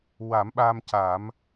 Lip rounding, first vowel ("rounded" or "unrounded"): unrounded